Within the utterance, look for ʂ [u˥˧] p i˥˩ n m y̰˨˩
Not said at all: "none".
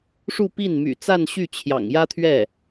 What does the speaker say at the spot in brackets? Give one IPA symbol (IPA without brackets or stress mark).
u˥˧